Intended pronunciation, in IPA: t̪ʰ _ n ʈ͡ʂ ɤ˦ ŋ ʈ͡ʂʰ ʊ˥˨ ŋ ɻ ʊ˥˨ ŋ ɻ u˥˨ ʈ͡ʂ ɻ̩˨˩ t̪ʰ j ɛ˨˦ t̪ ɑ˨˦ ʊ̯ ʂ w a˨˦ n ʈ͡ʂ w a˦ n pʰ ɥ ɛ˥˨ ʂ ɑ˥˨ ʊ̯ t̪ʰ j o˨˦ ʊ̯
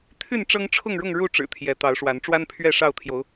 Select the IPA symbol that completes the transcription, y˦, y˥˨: y˥˨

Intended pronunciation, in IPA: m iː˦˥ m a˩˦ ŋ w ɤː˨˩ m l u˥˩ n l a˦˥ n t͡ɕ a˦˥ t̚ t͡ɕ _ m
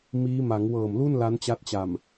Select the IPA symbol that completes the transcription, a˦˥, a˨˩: a˨˩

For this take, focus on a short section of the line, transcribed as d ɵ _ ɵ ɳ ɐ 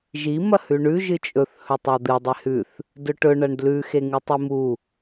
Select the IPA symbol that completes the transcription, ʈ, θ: ʈ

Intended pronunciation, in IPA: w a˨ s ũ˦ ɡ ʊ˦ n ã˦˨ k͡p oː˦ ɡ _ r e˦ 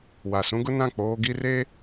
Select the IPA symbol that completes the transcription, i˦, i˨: i˦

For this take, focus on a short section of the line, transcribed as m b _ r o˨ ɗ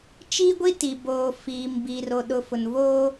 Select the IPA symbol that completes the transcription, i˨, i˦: i˨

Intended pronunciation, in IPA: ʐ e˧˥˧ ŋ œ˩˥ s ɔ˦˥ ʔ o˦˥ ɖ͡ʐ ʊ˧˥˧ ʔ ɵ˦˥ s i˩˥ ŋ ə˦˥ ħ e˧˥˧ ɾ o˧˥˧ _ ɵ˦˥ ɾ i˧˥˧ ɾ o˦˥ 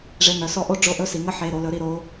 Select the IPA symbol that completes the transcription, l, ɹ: l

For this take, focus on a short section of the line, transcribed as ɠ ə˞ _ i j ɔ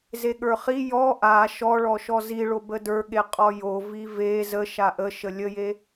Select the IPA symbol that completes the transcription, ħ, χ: χ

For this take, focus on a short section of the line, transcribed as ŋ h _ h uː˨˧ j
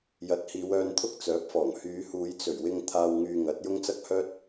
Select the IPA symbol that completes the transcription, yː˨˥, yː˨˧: yː˨˧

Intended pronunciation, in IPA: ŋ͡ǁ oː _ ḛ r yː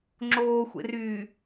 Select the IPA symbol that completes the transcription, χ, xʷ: xʷ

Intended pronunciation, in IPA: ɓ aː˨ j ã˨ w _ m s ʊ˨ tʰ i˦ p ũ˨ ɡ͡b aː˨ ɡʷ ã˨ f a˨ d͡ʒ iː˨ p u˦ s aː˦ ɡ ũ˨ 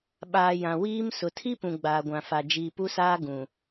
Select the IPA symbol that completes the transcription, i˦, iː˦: iː˦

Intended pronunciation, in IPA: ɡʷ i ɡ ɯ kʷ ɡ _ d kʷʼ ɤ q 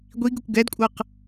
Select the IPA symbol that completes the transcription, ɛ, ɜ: ɛ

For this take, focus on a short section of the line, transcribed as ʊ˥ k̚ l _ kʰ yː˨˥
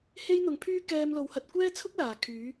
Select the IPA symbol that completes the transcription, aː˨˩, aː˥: aː˨˩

